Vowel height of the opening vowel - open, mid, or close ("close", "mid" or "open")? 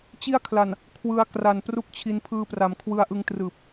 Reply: close